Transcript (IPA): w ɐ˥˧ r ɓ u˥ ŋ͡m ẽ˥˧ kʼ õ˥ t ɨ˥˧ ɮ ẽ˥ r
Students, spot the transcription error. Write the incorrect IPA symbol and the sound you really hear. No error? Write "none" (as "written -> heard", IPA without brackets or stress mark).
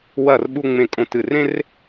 ɮ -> r